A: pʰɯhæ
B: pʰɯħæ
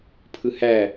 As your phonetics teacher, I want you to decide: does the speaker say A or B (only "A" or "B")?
A